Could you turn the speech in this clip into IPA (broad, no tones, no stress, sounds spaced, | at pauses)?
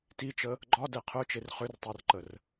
t i t͡ʃ ə | ɡ͡ǃ ɒ d ɛ qʰ œ t͡ʃ e r χ ʏ r tˤ œ r ǃ ə r